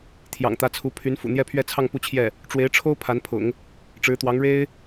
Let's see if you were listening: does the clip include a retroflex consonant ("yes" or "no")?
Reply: yes